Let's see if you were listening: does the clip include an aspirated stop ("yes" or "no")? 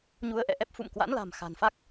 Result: no